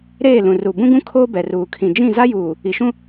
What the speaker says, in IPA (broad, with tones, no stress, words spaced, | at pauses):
ɾeː˦˨ lũ˨ ru˨ bũ˦ɡũ˦ kʰoː˦bɛ˨ruː˨ kʰĩ˨ d͡ʒĩ˦˨za˦juː˨ | i˨ʃũ˦